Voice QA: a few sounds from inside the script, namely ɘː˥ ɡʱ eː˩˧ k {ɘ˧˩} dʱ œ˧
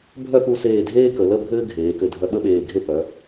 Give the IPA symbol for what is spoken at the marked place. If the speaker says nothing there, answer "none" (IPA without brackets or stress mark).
ɘ˧˩